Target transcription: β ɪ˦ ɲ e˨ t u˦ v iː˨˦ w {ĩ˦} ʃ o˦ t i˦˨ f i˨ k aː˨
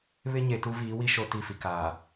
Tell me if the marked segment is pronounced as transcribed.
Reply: no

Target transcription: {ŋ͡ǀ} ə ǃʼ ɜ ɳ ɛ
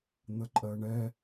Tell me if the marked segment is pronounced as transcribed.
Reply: no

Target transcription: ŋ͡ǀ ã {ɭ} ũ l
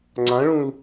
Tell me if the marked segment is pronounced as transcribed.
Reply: yes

